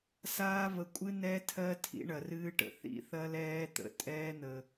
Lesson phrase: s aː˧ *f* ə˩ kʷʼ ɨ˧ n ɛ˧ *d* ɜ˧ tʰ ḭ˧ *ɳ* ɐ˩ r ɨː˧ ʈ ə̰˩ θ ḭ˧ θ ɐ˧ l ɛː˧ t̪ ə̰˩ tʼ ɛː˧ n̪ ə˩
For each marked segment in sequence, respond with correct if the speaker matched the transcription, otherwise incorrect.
incorrect: v, incorrect: tʰ, correct

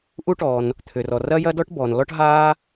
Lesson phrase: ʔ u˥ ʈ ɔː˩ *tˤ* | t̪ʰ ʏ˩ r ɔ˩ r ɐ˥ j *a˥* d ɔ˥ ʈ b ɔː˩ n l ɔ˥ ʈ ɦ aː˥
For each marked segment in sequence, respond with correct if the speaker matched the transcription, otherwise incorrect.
incorrect: n, incorrect: ɐ˥

